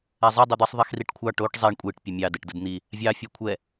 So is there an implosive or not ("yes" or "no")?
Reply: no